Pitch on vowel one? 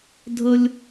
high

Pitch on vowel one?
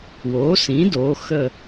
rising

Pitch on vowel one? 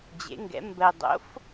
rising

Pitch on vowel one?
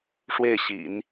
falling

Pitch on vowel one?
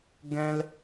high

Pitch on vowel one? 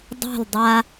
falling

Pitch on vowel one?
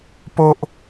high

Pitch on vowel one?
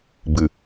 low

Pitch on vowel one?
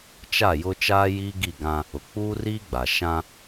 falling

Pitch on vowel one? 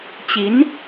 rising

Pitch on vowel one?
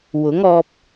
rising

